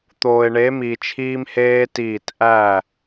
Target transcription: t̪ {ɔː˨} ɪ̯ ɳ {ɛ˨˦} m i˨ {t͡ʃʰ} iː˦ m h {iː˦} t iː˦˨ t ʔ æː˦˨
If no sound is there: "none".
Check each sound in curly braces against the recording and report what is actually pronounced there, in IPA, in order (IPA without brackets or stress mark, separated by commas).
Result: oː˨, e˨˦, t͡ʃʰ, eː˦